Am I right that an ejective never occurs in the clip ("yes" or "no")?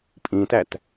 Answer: no